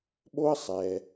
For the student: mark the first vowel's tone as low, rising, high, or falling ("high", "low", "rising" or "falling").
high